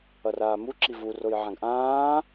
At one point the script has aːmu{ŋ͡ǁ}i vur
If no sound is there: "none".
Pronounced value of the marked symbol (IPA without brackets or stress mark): ǁ